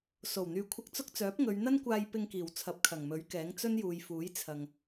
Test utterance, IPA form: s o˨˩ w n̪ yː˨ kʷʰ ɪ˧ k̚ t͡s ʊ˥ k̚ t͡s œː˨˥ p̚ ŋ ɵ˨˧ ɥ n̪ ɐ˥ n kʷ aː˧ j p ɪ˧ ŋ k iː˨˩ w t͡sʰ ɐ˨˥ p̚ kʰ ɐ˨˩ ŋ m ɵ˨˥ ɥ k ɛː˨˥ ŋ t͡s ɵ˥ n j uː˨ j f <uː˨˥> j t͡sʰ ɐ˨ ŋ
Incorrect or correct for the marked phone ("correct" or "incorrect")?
correct